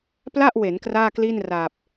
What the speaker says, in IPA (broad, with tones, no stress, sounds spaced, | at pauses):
p l a˥˩ ʔ w e˩˦ n k r aː˥˩ k l i˥˩ n r aː˨˩ p̚